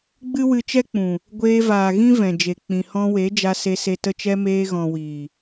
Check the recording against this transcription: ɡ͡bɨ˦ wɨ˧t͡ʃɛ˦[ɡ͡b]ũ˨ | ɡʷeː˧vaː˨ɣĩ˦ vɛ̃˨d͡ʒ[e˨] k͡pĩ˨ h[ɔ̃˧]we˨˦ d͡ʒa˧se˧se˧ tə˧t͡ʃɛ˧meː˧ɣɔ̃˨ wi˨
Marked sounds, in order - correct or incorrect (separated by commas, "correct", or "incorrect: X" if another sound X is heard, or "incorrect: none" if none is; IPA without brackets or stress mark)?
incorrect: k͡p, correct, correct